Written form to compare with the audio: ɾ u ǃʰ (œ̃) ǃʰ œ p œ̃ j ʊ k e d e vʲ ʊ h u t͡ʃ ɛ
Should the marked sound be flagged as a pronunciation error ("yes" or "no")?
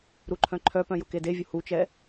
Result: no